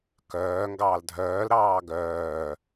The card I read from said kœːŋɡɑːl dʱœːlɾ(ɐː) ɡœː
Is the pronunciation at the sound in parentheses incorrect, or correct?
incorrect